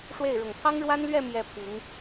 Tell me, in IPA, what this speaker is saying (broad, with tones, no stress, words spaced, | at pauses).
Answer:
ʂwe˥˩ɪ̯ ɻʊ˨˩ŋpʰɑ˥ŋɻwa˥nlɥɛ˥˧ mjɛ˥˩ pʰi˧˥ŋ